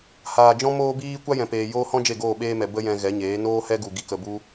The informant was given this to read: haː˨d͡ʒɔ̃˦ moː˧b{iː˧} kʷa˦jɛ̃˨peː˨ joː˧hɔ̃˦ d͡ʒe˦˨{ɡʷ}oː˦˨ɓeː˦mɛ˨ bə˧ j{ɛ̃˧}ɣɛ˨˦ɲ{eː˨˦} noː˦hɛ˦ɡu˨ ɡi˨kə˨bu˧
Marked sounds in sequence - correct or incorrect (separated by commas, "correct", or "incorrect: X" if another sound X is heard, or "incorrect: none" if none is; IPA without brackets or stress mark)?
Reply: correct, incorrect: ɡ, correct, correct